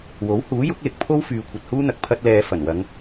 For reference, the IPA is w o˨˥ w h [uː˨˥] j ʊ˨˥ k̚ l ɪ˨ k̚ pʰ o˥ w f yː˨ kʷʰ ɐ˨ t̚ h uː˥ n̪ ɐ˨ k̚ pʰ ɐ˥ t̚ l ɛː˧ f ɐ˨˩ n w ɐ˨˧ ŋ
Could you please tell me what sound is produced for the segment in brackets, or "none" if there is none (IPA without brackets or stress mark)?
uː˨˥